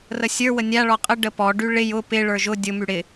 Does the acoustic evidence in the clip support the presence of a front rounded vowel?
yes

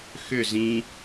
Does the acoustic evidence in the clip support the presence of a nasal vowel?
yes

